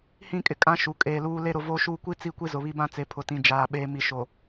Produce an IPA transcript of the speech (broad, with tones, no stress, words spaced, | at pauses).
hĩ˦˨ kʼɪ˨kʼã˦ʃu˨ kʼeː˨luː˦ le˦ɾʊ˨ voː˦ʃuː˦ kʷi˦ t͡si˦˨kʷi˦ zʊ˨βi˦ bã˦t͡se˨pʰʊ˨ tĩ˨d͡ʒaː˨ ɓe˨ mi˨ʃo˨